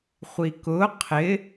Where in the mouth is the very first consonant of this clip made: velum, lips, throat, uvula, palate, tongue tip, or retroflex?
uvula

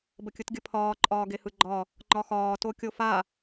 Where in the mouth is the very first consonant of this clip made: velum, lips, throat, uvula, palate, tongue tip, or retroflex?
lips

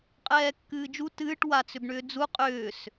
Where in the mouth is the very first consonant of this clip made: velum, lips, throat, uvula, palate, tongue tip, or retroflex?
uvula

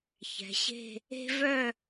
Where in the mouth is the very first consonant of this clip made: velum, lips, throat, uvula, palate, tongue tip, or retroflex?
palate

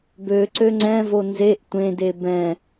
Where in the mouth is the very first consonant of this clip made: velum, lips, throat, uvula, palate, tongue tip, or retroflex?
lips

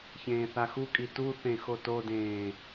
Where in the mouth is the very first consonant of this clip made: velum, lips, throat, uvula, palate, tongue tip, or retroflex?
palate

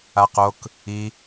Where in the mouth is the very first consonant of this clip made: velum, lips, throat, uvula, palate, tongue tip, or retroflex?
uvula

